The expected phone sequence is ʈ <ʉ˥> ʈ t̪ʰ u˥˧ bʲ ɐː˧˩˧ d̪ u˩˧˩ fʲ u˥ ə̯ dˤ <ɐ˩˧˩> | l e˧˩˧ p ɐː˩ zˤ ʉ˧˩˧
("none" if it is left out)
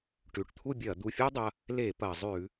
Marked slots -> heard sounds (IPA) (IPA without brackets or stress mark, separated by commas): ʉ˩˧˩, ɐ˩˧˩